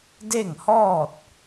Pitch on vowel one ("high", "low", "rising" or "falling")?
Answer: falling